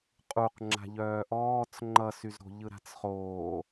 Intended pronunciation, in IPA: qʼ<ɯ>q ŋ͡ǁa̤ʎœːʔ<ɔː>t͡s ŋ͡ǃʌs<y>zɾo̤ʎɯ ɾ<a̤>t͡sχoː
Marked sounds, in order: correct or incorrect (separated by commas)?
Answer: incorrect, correct, correct, correct